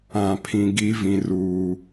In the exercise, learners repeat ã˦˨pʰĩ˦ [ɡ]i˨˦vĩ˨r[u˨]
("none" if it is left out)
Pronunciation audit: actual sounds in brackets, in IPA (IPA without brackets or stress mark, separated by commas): ɡ, uː˨